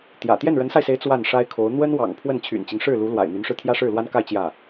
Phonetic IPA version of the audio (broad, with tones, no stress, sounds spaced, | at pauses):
t̪ j ä̰˨˩ t̪ j ɛ˥˩ n ɻ ə˧˥ n s a˧ ɪ̯ s e˧˥ ɪ̯ t͡s w a˥˩ n ʂ a˥ ɪ̯ kʰ o˧˥ ʊ̯ n̪ w ə˥ n w ɑ̰˨˩ ŋ pʰ w ə˥˩ n t͡ɕʰ y̰˨˩ n t͡ɕ i˦ ŋ ʂ ɻ̩˥˩ l u˧˥ l w a̰˨˩ ɪ̯ n̪ y˧˥ n ʂ ɻ̩˧ t̪ʰ j ä˥ ʂ ɻ̩˥˩ l w a˥ n k a˥˧ ɪ̯ t͡ɕ j ä˥˩